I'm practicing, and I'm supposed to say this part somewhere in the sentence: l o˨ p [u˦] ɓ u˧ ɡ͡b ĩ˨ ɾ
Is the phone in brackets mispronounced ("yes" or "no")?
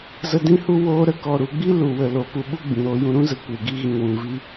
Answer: yes